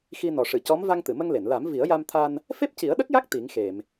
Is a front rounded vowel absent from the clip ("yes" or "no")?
yes